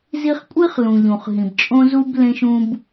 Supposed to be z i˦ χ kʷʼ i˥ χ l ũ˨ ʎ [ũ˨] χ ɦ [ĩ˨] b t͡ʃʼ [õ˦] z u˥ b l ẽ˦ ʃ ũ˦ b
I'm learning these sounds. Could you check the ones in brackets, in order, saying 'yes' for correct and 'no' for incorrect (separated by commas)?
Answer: yes, yes, yes